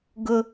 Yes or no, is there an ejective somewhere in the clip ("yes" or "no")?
no